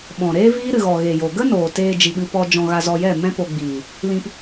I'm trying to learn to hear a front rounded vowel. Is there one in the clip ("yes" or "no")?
no